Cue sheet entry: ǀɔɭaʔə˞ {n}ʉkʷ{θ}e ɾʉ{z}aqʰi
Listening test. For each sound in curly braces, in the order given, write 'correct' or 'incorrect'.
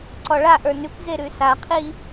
correct, incorrect, incorrect

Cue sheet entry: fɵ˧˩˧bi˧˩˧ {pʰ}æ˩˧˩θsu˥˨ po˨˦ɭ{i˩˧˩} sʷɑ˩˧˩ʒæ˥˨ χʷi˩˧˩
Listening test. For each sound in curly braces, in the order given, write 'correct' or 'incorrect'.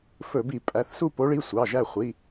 incorrect, correct

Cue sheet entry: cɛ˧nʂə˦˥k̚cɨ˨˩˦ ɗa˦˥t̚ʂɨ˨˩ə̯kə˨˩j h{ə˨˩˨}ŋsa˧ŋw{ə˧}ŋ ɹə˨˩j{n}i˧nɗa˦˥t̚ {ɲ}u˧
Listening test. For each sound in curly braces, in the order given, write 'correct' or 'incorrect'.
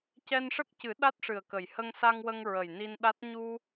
incorrect, correct, correct, correct

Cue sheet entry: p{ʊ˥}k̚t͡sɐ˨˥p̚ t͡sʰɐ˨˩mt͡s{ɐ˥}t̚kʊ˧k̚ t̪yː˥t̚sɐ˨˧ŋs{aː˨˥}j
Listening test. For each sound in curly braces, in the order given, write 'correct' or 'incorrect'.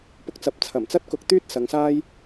incorrect, correct, incorrect

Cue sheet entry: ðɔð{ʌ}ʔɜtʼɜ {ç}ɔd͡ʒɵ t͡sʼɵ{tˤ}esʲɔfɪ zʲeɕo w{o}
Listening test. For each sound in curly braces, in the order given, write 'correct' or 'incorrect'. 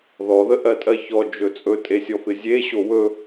incorrect, correct, incorrect, incorrect

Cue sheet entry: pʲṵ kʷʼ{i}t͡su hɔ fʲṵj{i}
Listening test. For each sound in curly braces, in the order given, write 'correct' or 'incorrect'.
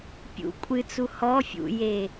incorrect, incorrect

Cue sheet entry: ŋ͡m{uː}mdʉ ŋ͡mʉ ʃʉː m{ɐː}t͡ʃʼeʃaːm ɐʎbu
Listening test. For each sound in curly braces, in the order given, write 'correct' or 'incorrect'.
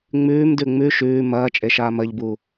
incorrect, correct

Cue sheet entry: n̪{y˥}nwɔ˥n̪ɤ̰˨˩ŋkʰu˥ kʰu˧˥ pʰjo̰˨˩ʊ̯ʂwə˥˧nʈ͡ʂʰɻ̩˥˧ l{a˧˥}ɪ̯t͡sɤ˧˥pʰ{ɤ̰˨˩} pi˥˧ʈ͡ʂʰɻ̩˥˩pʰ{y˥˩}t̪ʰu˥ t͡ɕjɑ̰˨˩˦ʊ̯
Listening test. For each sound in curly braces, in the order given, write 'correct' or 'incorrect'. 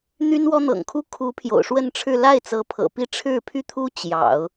correct, incorrect, correct, incorrect

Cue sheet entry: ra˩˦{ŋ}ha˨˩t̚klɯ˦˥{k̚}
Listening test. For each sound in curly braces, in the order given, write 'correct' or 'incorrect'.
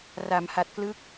incorrect, correct

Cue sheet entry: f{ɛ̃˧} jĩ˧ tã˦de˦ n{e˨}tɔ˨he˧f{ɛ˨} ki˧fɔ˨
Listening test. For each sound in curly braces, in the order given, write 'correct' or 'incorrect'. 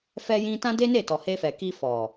incorrect, incorrect, correct

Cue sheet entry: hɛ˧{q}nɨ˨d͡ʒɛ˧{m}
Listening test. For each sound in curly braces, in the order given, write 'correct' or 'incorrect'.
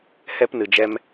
incorrect, correct

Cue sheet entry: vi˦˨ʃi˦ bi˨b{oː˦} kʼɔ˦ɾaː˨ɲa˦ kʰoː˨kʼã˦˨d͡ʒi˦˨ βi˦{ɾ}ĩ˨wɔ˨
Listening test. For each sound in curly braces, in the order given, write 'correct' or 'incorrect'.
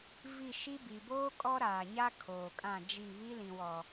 correct, incorrect

